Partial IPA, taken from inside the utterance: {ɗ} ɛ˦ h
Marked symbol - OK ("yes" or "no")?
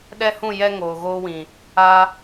yes